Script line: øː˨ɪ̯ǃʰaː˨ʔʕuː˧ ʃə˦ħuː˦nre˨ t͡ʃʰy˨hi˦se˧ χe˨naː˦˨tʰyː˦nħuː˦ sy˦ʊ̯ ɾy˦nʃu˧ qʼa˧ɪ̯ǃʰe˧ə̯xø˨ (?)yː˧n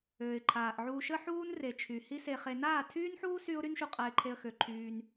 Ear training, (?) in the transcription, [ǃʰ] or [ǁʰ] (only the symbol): ǃʰ